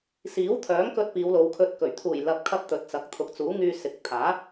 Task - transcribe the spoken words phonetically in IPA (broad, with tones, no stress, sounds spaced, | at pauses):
s iː˨˥ w t̪ʰ œː˨˥ ŋ k ɵ˧ t̚ p iː˨˧ w l o˨˧ w kʰ ɵ˧ t̚ k ɵ˨˩ ɥ t̪ʰ uː˨˩ j l ɐ˨ p̚ kʰ ɐ˧ p̚ t̪ ɵ˨ t̚ t͡s ɐ˨ k̚ t̪ʰ ʊ˨˥ k̚ t͡s uː˨˥ ŋ yː˧ s ɪ˨˥ k̚ t̪ʰ aː˨˥